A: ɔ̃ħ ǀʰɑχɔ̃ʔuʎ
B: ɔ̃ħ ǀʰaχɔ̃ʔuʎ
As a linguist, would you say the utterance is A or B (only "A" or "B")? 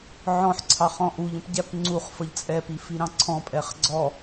A